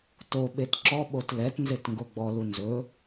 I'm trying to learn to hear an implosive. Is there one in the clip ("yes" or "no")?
yes